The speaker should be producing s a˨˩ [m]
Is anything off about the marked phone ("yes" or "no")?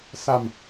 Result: no